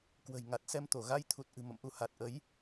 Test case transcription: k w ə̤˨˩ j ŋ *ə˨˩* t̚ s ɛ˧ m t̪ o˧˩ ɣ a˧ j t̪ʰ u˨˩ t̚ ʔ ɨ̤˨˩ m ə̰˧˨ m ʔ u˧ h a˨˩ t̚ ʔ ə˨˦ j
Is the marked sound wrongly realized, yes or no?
yes